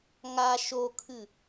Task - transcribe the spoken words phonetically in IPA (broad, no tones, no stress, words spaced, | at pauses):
ŋa ʃokʰɨ